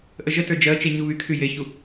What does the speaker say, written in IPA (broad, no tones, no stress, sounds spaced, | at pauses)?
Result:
ʔ ə ʒ ə t ə˞ d͡ʒ ɜ t͡ʃ e ɲ u β y kʰ y j e ç u